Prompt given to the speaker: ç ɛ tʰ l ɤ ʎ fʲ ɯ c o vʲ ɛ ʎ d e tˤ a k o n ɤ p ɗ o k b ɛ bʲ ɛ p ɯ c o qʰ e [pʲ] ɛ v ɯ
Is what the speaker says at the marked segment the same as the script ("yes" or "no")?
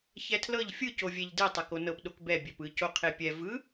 yes